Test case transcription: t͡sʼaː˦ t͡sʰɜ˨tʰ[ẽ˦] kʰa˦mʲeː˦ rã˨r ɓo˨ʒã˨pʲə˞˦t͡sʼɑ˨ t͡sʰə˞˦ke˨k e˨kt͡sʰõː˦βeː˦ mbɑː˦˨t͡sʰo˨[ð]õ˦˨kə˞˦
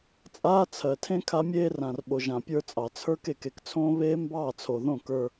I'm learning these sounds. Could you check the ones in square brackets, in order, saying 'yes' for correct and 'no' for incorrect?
yes, yes

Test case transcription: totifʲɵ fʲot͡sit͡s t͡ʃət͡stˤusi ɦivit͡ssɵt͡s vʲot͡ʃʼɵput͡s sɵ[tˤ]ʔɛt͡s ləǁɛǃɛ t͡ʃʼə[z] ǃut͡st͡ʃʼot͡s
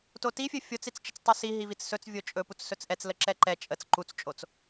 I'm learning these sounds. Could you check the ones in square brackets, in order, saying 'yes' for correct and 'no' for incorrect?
no, no

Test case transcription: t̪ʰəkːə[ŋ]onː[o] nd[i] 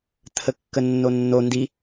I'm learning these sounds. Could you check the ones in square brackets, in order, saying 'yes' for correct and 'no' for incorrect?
no, yes, yes

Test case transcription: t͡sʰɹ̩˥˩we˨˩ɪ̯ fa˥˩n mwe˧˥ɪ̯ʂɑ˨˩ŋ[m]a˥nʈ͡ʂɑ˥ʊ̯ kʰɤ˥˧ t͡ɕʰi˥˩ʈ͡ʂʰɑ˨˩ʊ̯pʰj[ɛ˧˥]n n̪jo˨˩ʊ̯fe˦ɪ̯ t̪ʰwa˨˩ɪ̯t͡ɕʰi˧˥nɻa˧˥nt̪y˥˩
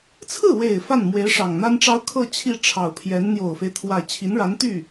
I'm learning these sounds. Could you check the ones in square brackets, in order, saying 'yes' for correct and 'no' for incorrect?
no, yes

